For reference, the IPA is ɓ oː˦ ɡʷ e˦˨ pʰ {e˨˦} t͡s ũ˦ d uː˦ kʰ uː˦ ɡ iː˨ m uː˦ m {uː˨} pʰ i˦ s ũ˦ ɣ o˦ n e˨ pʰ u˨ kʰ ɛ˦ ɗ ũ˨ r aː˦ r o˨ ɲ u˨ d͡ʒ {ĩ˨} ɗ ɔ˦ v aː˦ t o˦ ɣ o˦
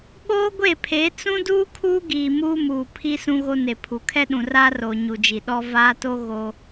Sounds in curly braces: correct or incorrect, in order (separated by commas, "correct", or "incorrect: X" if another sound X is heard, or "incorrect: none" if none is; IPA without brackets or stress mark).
correct, correct, incorrect: i˨